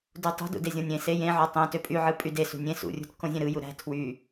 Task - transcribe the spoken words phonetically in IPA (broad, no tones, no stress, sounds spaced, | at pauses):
d u tˤ ṳ d ṵ d e zʲ õ nʲ ẽ s e j ẽ ʕ o tˤ ẽ t ø pʼ y ʕ ɯ pʼ y d e s ṳ nʲ ẽ s ṵ rʲ ṳ t k õ zʲ ẽ ɾ ɯ j u ɾ æ̤ tʰ w y